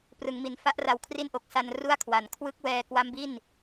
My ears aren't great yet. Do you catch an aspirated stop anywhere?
yes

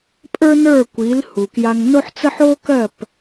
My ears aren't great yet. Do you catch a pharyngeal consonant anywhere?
yes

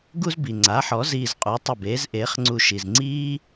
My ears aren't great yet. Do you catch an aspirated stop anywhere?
no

